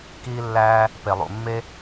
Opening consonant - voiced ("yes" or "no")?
no